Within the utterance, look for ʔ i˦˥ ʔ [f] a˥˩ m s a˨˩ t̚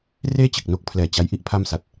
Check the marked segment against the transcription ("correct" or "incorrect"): incorrect